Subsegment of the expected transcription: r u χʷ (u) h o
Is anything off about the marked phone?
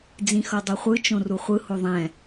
yes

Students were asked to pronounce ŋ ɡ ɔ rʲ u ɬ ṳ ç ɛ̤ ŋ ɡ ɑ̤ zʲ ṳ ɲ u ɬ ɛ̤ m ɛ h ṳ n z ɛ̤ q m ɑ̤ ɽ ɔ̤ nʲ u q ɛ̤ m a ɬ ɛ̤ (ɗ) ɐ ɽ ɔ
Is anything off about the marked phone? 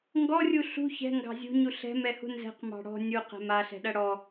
no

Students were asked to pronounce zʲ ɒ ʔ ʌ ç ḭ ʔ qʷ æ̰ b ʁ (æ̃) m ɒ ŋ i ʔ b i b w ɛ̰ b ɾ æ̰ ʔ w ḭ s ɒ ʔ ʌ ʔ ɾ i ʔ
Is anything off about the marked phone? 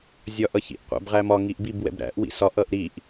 yes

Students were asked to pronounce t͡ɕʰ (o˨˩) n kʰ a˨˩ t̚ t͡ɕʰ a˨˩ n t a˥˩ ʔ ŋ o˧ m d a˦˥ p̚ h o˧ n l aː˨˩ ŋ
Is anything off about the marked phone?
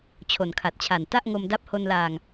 no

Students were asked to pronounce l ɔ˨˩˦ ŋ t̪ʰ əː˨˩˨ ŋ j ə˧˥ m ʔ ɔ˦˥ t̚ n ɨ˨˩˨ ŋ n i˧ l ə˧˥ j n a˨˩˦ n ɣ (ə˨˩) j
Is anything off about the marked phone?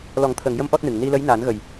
no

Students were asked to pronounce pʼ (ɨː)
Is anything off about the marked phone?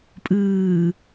no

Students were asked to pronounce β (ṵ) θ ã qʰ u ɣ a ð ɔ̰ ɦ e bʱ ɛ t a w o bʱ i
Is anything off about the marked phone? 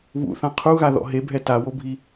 no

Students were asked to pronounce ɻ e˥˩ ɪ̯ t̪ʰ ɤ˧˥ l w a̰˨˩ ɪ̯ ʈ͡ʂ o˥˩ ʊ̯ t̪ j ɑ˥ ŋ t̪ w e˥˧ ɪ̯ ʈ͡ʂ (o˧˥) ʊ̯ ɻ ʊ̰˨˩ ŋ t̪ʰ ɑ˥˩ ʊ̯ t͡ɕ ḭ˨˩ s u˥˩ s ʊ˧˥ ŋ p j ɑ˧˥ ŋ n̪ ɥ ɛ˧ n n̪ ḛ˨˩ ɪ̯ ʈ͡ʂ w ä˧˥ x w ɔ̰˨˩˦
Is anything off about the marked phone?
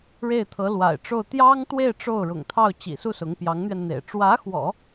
yes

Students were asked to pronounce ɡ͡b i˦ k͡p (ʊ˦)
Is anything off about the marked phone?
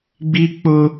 no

